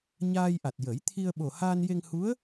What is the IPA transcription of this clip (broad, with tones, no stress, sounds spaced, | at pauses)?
ɲ aː˧ j ʔ a˨˩ t̚ j ə˨˩˦ j t̪ʰ i˧ ə̯ ɓ o˨˩ h aː˧ n j e˧ ŋ h u˧˥ ə̯